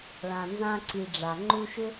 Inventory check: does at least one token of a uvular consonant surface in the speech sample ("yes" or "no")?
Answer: no